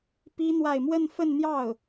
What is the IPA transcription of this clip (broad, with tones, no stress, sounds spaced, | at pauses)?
p i˥ n̪ w a˥˧ ɪ̯ m w ə˥˧ n f ə˥˧ n n̪ j ɑ˥˩ ʊ̯